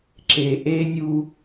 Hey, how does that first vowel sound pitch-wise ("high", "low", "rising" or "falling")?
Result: low